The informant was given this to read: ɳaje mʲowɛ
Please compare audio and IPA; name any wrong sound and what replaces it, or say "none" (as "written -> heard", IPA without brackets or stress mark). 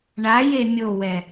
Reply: none